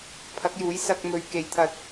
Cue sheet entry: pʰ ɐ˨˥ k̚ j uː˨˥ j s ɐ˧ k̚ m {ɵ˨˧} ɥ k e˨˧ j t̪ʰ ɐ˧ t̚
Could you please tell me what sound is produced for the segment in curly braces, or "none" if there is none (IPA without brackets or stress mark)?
ɵ˨˧